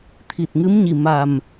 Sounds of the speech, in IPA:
t̪ʰ i˨˩ t̚ ŋ ɨ˧˥ m ɲ i˨˩ m a˨˩ m

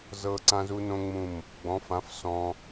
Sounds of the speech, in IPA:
z ɤ˧ ǀ ã˦ z u˦ n õ˦ ŋ͡m ũ˦˨ m | ɡ͡b ɔ̃˨˦ f ã˨˦ f s ɔ̃˧

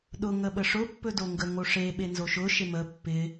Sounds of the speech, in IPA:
ɗ ʊ ŋ ə ɓ ə ʂ ʊ pː ɵ d o ŋ ɡ ə ŋ o ʂ e ɓ e n z o ʃ ʊ ʃ e m ə pː ɪ

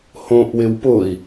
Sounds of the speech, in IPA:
h õ ʔ w ɪ w p ʊ i̯

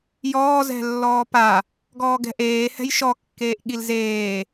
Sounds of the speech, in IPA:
j ɔː z ɛ̤ lː ɔː p a | ɡ ɔː ɡ ɛ̤ ʔ eː h ɛ̤ j ʃ ɔ kː eː ʔ ɠ i l z eː

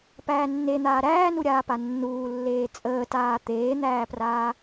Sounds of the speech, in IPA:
p æː nː e n̪ aː ɾ æː n u ɾʲ aː p a nː uː lː eː t͡sʼ əː t aː t̪ eː n̪ æː p r aː

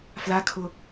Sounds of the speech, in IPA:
f l a kʰ ʊ

